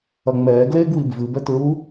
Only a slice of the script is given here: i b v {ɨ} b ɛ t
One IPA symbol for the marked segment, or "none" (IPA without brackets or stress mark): ɨ